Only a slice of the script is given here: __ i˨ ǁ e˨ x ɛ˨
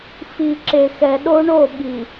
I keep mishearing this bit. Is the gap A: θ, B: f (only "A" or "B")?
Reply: B